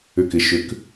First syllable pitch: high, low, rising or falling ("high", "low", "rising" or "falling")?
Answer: low